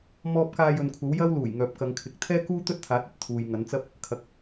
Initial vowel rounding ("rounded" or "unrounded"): rounded